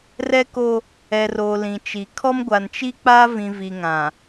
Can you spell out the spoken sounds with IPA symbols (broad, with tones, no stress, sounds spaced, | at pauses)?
r ɛ˦ k o˦ | ɛ˨ r o˨ l ĩ˨ t͡ʃ i˨ kʰ ɔ˦ m ɡʷ a˨ n t͡ʃ i˦ k͡p a˦ v ĩ˨ v i˨ ŋ ã˨